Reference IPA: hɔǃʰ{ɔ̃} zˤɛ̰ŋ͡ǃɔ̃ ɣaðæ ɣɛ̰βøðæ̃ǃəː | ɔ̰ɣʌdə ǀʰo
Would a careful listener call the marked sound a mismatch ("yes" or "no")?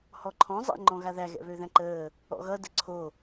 no